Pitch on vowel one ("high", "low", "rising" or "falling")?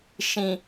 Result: low